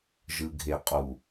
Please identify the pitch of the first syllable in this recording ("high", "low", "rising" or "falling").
low